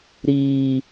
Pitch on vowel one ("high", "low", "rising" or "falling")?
low